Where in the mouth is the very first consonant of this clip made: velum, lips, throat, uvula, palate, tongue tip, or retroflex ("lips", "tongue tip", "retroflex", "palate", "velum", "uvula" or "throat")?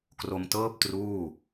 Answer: velum